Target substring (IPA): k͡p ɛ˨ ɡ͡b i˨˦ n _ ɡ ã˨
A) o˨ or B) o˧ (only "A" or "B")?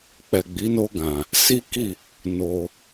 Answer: B